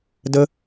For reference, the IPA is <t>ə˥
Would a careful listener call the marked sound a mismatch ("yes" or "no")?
yes